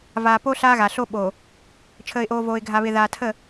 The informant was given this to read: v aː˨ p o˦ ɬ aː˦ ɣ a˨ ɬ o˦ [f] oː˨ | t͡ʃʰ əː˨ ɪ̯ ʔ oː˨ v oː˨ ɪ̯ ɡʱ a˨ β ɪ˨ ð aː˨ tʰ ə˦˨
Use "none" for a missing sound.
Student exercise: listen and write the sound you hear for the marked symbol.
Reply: ɓ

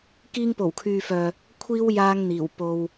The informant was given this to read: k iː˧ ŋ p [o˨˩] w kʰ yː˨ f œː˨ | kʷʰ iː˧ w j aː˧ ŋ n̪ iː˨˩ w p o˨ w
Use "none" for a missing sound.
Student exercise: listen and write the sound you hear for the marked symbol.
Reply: o˨˩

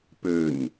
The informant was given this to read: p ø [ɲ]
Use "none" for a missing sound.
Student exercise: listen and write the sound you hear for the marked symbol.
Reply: ɲ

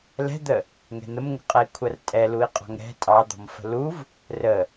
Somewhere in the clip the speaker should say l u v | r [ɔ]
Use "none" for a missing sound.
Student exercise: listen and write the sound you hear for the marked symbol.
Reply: ə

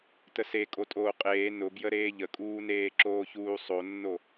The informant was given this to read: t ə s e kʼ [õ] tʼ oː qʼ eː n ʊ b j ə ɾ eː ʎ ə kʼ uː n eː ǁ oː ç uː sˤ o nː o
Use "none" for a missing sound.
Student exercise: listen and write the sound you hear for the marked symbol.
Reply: o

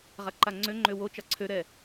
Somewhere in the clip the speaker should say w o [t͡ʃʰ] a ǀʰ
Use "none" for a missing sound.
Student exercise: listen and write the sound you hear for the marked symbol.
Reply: t͡ʃ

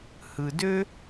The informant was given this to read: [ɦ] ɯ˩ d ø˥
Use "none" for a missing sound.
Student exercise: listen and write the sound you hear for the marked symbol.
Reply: h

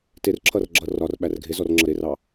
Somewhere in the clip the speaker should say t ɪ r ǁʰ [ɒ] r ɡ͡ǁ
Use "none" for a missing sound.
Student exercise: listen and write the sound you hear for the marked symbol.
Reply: ʌ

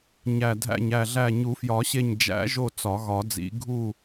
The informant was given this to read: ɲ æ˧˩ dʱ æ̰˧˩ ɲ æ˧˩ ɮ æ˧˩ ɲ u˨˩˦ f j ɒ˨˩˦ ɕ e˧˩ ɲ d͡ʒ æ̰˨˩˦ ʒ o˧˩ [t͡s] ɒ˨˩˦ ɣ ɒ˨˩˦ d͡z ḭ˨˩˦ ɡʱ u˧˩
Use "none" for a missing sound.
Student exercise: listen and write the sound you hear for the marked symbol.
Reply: t͡s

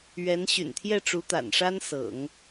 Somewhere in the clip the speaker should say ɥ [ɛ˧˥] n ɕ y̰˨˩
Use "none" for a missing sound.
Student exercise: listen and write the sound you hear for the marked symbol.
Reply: ɛ˧˥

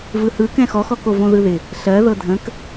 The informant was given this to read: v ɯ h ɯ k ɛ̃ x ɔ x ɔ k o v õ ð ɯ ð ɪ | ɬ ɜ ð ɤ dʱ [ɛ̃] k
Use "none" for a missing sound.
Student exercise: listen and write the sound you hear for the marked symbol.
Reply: ə̃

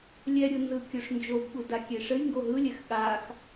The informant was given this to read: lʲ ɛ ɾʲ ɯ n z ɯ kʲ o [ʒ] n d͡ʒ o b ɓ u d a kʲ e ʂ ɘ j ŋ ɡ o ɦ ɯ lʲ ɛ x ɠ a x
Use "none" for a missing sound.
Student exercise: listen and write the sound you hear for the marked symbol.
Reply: ʂ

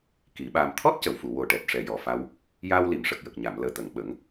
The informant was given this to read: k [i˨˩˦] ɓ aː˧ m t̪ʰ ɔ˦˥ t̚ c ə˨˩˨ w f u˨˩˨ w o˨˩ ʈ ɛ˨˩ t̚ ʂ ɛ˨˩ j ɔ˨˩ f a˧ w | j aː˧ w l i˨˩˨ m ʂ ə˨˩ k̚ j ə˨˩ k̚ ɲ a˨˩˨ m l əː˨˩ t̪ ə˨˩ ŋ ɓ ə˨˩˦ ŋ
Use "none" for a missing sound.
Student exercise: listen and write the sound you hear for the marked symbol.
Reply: i˨˩˦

